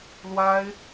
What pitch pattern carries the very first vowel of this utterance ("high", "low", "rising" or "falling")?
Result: high